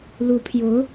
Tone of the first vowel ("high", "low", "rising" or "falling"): rising